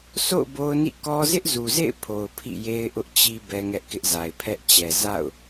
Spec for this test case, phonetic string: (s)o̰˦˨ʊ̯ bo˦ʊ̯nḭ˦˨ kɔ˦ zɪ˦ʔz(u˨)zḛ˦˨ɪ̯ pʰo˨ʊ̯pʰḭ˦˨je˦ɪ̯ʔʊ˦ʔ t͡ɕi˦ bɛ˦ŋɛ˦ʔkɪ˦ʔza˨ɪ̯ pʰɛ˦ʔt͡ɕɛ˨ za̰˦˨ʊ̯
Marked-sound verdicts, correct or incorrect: correct, correct

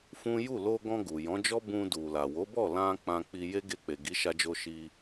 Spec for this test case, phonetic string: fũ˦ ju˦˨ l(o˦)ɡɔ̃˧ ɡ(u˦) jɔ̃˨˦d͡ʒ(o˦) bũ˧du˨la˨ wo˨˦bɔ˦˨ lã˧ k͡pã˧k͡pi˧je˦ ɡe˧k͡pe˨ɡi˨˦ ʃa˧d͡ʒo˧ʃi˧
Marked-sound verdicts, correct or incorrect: incorrect, incorrect, incorrect

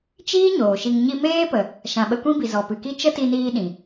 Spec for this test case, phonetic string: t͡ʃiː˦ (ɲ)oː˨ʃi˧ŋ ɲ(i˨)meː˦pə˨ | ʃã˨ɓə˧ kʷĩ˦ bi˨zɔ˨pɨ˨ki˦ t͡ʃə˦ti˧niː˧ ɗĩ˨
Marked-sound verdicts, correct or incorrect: correct, incorrect

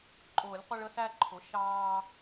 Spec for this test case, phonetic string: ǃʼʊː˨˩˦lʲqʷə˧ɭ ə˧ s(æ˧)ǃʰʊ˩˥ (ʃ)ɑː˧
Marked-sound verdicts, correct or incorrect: correct, correct

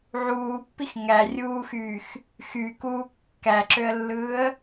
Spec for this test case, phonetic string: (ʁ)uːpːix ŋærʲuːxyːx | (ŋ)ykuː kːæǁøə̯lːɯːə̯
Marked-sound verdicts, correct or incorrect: incorrect, incorrect

